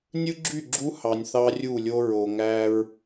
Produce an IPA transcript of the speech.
nʲ ɯ˦ ɡ͡ǁ y˦˨ ɡ͡ǁ u˦ h ɑ˨ nʲ θ ɑ˦ rʲ u˦˨ lʲ o˦ ɹ o˨ ŋ æ˦ ɹ

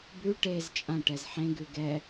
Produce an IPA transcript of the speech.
b ʉ ʈ e z t͡ʃʼ ã ʈ ɛ z ħ ẽ ɡ ʉ ɡ ɛ

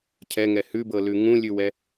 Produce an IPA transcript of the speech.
cʰ ɛ ŋ ɛ h ʉ b ɤ l ʉ ŋ ũ lʲ ʉ w ɛ

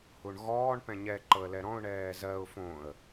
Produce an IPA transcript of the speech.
h u ɳ ɣ ɔː ɳ p ɛ̃ ɲ ɛ ǃ ɤ ə̯ l ɛ ɾ ɔ̃ ʊ̯ ɳ ɛː z ɜ ʊ̯ f õ ə̯

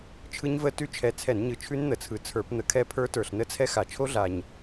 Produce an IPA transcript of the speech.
t͡ʃʰ ɯ˦˥ ɲ v ə˦˥ t ʉ˦˥ t͡ʃʰ ɛ˨˩ t͡sʰ ɛ˧˩˧ n ɲ ɯ˨˩ t͡ʃʰ ʉ˦˥ n n̪ ə˨˩ t͡sʰ ɯ˨˩ t͡sʰ ə˞˧˩˧ p n̪ ə˧˩˧ kʰ ɛ˦˥ pʰ ə˞˦˥ t ə˞˨˩ ɬ n ə˦˥ t͡sʰ ɛ˦˥ x a˨˩ t͡ʃʰ o˦˥ ɮ a˨˩ ɲ

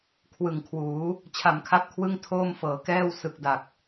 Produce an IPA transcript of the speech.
kʰ w ɯ˨˩ ŋ kʰ w uː˩˦ | t͡ɕʰ a˨˩ m kʰ a˦˥ p̚ kʰ w ɯ˥˩ ŋ tʰ oː˥˩ m f ɤː˩˦ k ɛː˥˩ w s ɯ˨˩ k̚ d a˨˩ k̚

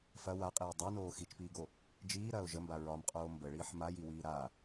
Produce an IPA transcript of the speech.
f ɐ w a qʼ iː dˤ a n oː x i t͡ʃ p iː ɡ o | d͡ʒ iː ɾ ɐː ʊ̯ ʒ ə m b a ɹ ɒ m qʼ oː m b ə ɭ iː ħ m a j i w iː ɾ a

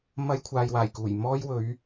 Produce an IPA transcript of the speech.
m ɐ˥ j kʷʰ aː˧ j w aː˨˩ j k uː˨˩ j m ɔː˥ j w ɵ˨˥ ɥ

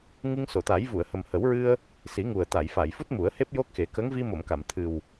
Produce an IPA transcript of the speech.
ŋ ɨ˧ ŋ s o˨˩˨ t̪ a˨˩˦ j v u˨˩˨ ə̯ h ə˨˩ m h ə˨˩˦ w ɹ ɨ˧ ə̯ | s i˨˩˦ ŋ u˨˩ ə̯ t̪ a˨˩˨ j f a˨˩˨ j f u˦˥ t̚ m u˨˩˦ ə̯ h e˦˥ p̚ j o˦˥ k̚ x e˨˩˦ k ə˧˥ ŋ v i˧ m o˨˩˨ m k a˨˩˨ m t̪ʰ ɨ˨˩ w

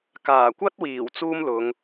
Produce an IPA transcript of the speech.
k aː˨˩ kʷ ɐ˥ t̚ w iː˨˩ w t͡s uː˥ m l ʊ˨˧ ŋ

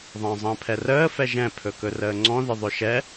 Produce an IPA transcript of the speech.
ðˤ ə̃ː zˤ ə̃ː pʰ ɛ r əː f ɛ ʒ ɛ̃ pʰ ɵ k ɵ r əː ŋ͡ǀ ɔ̃ ð ɪ ðˤ ɵ ʃ ɛ

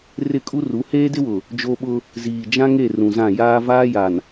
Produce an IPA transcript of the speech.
r ɪ˦˨ kʼ u˦ r u˨˦ h eː˦ d ɪ˦ w ʊ˨ | d͡ʒ o˦ ɓ ʊ˦ | z iː˨ d͡ʒ ã˦ ŋ e˦˨ r ũ˨ z ã˦˨ j aː˦ v aː˦ j a˨ n

